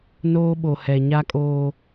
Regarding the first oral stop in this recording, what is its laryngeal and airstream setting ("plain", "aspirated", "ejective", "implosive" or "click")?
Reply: implosive